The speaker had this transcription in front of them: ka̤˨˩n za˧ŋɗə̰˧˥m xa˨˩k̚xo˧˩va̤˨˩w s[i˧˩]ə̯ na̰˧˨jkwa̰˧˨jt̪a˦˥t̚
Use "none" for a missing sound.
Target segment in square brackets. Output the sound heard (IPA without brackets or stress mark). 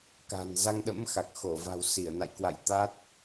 i˧˩